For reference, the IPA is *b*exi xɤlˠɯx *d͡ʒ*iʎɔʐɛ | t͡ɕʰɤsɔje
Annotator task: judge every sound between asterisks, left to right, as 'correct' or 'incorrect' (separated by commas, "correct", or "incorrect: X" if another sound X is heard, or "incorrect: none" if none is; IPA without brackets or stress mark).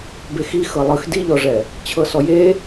correct, incorrect: d